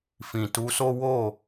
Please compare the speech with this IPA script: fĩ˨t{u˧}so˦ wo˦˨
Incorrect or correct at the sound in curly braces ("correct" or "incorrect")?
correct